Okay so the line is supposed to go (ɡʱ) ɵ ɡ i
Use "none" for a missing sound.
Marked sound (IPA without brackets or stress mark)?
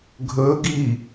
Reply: ɡʱ